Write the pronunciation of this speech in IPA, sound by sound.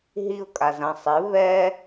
ɦiʊ̯ kʼazɐ̃ sˤɪ βɛ

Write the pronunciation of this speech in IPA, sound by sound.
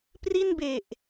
pri˥˩nbe˨˩ʔ

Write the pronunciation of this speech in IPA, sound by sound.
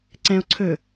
ǀɛ̃o̯ ǀʰɵ

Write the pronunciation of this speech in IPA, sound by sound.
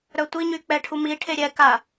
ɾœtʷiɲy k͡pɛʈʰumiʈʰe ɾʲɛka

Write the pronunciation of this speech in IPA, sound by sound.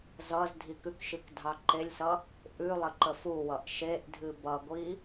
zʌz dʱikʉkʃɨk dʱɑǃelʲsʌ | ʔʉlˠə ǃəfuwʌʔ ʃeʔ dʱɨbʌɡʷi

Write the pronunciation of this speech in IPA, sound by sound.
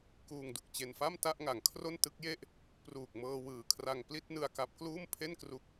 kuː˧ŋdu˨˩k̚t͡ɕe˧nfa˥˩m ta˥˩ʔŋa˩˦ŋ kʰro˥˩ntɯ˦˥k̚je˥˩ʔ | pruː˨˩k̚mɤː˧wɯː˨˩kʰra˧ŋ pli˥˩t̚nɯ˧a̯ka˦˥p̚ kluː˥˩mpʰe˥˩nkru˦˥k̚

